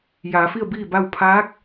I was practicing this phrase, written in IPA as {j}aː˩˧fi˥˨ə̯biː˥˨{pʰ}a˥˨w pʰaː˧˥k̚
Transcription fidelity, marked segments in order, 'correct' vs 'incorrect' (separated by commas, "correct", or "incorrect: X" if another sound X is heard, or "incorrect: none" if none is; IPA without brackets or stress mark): correct, incorrect: b